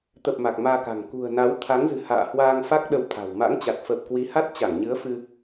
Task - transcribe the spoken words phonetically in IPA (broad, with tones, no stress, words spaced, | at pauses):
t̪ə˨˩p̚ ma˨˩k̚maː˧ka̤˨˩ŋ kṳ˨˩ə̯na˨˦wt̪ʰa˨˦ŋzɨ̤˨˩ ha̰ː˧˨hwaː˧ŋfa˦˥k̚ ɗə˧wt̪ʰa̤˨˩w ma̰˧˥ŋt͡ɕa˨˩t̚ fə˨˩p̚ kwi˨˦ha˦˥t̚t͡ɕa˧˩ŋɲɨ˨˦ə̯ fɨ˧